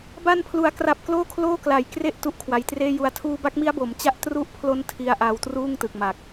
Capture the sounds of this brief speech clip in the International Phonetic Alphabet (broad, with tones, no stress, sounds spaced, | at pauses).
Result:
b a˧ n pʰ l u˩˦ a̯ k r a˨˩ p̚ k l oː˥˩ kʰ l oː˥˩ k l a˨˩ j k r e˥˩ ʔ t u˦˥ ʔ kʰ w a˩˦ j t r eː˥˩ j u˧ a̯ tʰ uː˧ b a˦˥ k̚ m i˦˥ a̯ b o˩˦ m t͡ɕ a˦˥ ʔ t r u˦˥ ʔ pʰ l o˦˥ n tʰ i˦˥ a̯ ʔ a˧ w t r uː˥˩ ŋ t ɯ˨˩ k̚ m a˨˩ k̚